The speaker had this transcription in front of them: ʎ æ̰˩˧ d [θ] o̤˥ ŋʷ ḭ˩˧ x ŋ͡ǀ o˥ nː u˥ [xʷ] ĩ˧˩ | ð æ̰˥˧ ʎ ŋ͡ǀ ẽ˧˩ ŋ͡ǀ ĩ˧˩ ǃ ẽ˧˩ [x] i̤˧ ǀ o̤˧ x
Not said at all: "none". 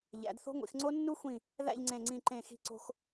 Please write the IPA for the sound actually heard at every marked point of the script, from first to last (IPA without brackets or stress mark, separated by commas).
θ, xʷ, x